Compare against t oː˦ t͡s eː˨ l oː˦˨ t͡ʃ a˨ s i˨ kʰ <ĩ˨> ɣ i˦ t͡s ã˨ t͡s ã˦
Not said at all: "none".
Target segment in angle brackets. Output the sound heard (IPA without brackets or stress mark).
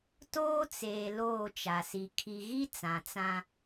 i˨